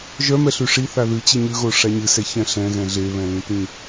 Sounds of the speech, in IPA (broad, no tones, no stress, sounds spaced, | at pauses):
ʒ œ m ɛ ɬ ʉ ʂ i θ a ð ɨ t͡ɕ ɨ ɲ ʉ ɣ o ʂ a ɲ ɨ s ɛ ç ɛ̃ ɬ ɛ̃ ɣ ɛ̃ ɮ e β ɛ̃ l ĩ t ĩ